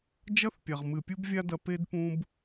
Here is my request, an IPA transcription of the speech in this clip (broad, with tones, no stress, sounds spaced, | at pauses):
d͡ʒ ɐ˦ θ pʲ a˨ ʁ m ɨ˨ pʲ u˦ b vʲ a˦ d ɐ˧ p e˦ d p ũ˦ b